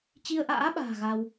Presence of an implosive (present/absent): present